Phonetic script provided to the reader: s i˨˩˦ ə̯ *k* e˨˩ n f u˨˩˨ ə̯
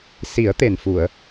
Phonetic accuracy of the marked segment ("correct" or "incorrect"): incorrect